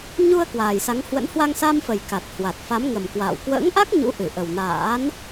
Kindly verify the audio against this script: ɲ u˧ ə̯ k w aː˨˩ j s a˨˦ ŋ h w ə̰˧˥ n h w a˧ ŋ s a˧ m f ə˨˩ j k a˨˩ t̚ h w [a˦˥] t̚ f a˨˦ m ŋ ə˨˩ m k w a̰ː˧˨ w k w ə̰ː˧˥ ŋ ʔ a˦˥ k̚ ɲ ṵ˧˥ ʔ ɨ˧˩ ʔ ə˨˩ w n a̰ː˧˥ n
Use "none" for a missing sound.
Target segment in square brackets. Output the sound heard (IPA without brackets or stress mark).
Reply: a˨˩